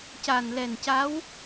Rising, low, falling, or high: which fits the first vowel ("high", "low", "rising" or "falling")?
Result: low